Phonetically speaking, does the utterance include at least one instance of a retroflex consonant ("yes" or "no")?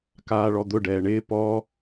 yes